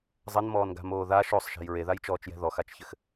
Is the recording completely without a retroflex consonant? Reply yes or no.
yes